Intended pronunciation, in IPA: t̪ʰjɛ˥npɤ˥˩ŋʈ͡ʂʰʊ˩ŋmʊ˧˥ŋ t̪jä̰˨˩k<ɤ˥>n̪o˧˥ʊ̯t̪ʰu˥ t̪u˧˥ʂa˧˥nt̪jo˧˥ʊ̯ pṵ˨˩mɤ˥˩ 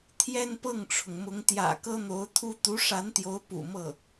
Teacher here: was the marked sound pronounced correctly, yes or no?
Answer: yes